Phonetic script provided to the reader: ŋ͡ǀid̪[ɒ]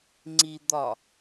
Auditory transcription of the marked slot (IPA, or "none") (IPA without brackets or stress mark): ɒ